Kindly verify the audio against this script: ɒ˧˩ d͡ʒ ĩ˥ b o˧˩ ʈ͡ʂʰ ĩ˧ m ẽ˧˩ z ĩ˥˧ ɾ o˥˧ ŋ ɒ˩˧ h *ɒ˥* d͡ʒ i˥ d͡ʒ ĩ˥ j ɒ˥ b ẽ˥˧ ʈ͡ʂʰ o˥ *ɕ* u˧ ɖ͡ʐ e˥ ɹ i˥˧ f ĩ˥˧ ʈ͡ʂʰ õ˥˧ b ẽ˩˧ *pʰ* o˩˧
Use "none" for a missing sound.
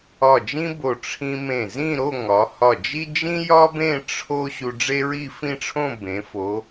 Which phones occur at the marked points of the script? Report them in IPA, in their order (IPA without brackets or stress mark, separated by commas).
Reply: ɒ˧˩, ɕ, f